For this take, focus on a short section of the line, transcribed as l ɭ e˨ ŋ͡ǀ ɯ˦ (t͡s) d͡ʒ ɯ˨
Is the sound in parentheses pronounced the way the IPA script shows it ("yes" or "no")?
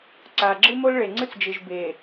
yes